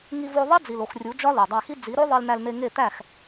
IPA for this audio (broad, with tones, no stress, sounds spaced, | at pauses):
ŋ i˧ v o˧ ðˤ e˦ d͡z i˨ l o˨ x rʲ u˨˦ d͡ʒ ɒ˦ l o˨ dˤ æ˧ x i˦ d͡z i˨˦ ɾ o˦ ðˤ i˧ l n̪ æ˧ l n̪ e˧ ŋ e˦˨ t̪ æ˦˨ x